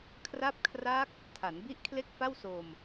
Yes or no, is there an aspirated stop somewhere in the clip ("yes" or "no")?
yes